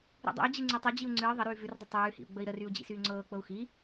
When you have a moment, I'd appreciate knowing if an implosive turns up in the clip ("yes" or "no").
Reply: no